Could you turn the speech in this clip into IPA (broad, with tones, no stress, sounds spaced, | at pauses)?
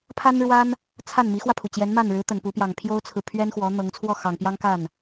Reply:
pʰ a˥ n ɻ w a˥ n | t͡sʰ a˥˩ n m i˧˥ x w ä˧ pʰ u˩ t͡ɕ j ɛ˧˥ n m a˥˩ n ɻ ɻ̩˧˥ t̪ ə˨˩ n p u˧˥ p j ɑ˨˩ ŋ pʰ j o˥ ʊ̯ t͡sʰ ɹ̩˨ pʰ ɥ ɛ˥ n x w ɔ˧˥ n̪ ɤ˧˥ ŋ t͡sʰ w ɔ˥˩ x ɑ˨˩ ŋ p j ɑ˥ ŋ k a˥˩ n